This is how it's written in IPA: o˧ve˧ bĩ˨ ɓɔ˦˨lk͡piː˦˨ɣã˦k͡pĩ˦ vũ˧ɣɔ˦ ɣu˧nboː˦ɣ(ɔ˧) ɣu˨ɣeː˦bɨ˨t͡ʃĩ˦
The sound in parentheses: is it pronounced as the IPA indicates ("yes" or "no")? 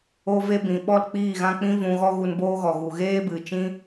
no